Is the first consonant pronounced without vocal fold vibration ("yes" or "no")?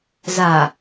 no